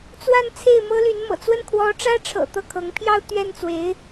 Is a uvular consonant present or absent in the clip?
absent